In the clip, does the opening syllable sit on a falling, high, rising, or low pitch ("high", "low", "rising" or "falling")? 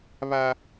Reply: high